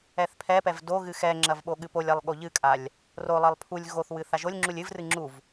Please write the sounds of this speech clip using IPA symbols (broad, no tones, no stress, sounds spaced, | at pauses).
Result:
ɛ θ pʰ ɛ p ɛ v d o ɣ ɨ x ɛ ŋ͡ǁ ɐ v ɓ o ɠ ɨ p o lʲ a lˠ ɠ o ʎ ɨ kʼ a lʲ | r o lˠ ɐ lˠ pʰ u lʲ ɣ o θ w ɨ θ a ʒ o lʲ ŋ͡ǁ u lʲ ɨ v r ɨ ŋ͡ǁ u v